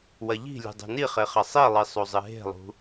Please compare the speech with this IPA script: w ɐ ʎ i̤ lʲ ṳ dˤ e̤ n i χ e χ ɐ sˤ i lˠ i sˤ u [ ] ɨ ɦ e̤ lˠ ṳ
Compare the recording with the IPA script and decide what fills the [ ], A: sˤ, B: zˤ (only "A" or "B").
B